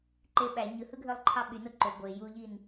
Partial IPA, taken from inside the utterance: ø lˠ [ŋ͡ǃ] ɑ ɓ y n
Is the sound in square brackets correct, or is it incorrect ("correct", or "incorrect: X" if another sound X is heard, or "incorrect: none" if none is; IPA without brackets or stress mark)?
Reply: incorrect: ǃʰ